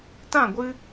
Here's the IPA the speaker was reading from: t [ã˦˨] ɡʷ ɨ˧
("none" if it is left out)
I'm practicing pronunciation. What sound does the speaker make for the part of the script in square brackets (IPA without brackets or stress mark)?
ã˦˨